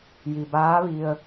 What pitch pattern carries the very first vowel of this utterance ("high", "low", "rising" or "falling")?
low